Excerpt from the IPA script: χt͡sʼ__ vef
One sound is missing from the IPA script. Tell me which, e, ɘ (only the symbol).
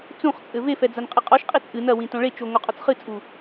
ɘ